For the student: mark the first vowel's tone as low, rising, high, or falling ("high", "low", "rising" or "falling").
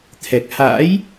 low